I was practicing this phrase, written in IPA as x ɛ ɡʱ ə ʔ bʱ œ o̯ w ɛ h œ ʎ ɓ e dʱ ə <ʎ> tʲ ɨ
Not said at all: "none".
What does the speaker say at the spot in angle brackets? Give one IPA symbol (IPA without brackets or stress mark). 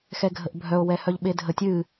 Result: none